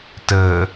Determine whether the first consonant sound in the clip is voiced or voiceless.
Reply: voiceless